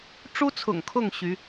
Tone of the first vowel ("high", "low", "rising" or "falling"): high